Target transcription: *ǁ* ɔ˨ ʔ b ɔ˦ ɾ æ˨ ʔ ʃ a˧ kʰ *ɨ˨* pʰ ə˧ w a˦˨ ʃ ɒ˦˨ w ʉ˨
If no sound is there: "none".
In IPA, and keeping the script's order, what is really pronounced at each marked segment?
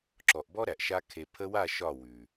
ǁ, e˨

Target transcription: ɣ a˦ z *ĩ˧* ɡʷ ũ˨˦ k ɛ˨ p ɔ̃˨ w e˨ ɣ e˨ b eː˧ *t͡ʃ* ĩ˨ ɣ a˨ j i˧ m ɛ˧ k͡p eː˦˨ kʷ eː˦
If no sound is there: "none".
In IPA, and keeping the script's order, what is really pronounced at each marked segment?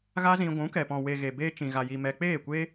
ĩ˧, t͡ʃ

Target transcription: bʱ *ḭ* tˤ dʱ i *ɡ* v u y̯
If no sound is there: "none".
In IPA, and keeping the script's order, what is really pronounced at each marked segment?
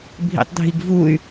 ḭ, ɡ

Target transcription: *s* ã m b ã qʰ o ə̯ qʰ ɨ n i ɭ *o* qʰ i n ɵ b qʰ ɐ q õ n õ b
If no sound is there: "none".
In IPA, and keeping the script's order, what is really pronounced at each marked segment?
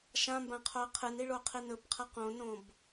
ʃ, o

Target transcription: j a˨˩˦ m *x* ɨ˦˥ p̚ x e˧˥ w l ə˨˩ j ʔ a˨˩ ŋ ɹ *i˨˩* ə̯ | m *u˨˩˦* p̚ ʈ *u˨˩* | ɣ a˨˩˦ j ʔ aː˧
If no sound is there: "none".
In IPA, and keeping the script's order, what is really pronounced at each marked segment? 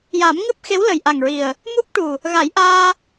ŋ, i˨˩, u˦˥, u˨˩

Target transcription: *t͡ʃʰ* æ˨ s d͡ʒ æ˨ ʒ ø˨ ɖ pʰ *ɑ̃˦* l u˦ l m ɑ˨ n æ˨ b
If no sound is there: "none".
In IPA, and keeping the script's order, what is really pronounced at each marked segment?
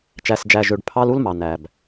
t͡ʃ, ɑ˦

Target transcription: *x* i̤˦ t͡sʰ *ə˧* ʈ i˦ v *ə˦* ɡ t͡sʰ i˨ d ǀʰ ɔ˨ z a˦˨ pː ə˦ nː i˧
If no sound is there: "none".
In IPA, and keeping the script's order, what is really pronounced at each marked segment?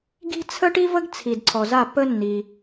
ɡ, ə˦, ə˦

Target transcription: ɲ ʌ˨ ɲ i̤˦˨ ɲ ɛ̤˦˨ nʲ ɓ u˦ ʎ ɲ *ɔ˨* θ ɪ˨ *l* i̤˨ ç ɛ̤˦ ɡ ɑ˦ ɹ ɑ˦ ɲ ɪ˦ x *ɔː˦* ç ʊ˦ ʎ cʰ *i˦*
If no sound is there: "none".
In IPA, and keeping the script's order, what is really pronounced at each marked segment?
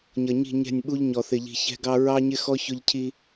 ɔ˨, ʎ, ɔ˦, i˦

